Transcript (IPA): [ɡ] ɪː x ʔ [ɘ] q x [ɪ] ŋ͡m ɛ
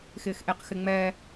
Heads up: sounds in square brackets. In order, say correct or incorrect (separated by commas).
incorrect, incorrect, correct